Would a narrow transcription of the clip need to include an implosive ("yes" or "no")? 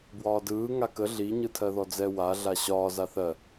no